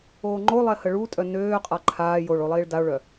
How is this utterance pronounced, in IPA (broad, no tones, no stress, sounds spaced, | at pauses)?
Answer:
oː ŋ͡ǃ o lˠ ɛ h ə ɭ u tʼ œ n øː qʼ a ǃʰ aː j o ɭ o lˠ iː ɭ d a o̯ ɭ œ